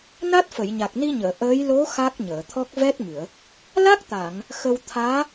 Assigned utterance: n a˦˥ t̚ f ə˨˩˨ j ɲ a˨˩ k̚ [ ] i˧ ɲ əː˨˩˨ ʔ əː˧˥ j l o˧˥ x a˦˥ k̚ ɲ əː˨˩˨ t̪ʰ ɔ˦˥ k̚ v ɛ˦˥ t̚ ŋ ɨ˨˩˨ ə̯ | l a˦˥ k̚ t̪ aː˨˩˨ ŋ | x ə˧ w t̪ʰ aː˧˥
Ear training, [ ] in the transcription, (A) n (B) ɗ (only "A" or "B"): A